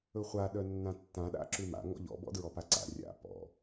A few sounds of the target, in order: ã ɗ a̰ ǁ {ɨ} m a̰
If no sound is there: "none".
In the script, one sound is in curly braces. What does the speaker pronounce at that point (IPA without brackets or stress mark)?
ʉ